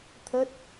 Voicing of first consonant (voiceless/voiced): voiceless